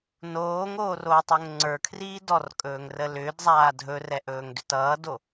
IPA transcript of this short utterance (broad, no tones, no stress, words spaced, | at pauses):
noːŋoːroːtˤɵŋ ŋ͡ǀə˞kʰriː dɔrkʼɵːŋrə lʏːdzˤaː dʱɵrɛʔɵːŋdʏt ʌːdo